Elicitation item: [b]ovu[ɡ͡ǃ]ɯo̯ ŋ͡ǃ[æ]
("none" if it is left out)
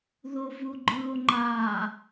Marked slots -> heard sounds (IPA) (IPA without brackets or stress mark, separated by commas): ð, ɡ͡ǃ, a